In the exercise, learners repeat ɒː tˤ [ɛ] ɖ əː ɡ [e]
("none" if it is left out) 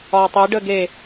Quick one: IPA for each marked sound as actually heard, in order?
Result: e, e

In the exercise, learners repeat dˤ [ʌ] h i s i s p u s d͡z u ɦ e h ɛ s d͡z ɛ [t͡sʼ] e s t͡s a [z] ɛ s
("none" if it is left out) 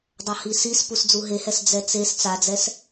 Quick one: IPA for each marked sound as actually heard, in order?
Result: ʌ, t͡s, d͡z

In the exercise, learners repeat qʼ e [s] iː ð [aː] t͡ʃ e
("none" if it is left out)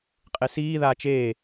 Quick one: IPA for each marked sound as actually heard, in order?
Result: s, aː

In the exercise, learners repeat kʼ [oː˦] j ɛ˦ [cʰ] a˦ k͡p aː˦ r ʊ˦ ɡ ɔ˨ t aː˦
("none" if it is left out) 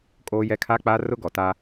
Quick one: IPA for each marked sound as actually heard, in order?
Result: oː˦, kʰ

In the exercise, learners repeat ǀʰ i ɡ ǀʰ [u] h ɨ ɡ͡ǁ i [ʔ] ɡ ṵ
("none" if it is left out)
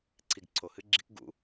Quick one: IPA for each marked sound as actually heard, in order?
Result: o, k

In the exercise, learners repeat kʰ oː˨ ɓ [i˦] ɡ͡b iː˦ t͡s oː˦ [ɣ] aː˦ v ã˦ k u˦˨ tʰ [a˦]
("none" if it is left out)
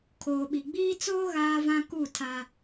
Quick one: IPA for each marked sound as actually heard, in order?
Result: i˨, ɣ, a˦

